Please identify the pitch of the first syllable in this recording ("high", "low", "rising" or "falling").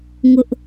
high